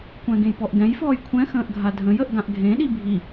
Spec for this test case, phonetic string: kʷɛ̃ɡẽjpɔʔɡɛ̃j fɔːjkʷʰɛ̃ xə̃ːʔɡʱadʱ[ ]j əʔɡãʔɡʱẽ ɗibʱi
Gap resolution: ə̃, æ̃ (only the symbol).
ə̃